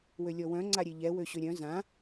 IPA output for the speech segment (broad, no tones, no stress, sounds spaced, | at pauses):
w ø lʲ ɔ w œ̃ ŋ͡ǀ a ɾʲ e ʎ ɛ w ø ɕ ø ɾʲ œ̃ z ã